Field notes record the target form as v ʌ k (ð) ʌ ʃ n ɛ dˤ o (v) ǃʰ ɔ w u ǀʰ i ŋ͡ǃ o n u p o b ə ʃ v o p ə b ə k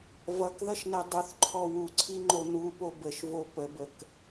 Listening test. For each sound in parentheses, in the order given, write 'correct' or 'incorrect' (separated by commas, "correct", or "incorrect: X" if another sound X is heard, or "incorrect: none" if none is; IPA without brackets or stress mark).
correct, incorrect: θ